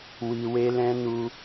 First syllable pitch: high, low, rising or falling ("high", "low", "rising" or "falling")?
high